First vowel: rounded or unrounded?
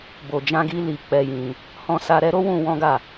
rounded